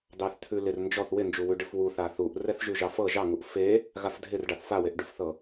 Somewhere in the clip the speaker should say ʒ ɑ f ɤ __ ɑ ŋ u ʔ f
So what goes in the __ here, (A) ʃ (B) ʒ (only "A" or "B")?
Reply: B